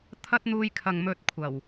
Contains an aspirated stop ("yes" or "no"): yes